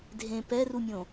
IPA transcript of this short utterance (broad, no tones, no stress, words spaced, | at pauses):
dʱẽ pɛrumʲõ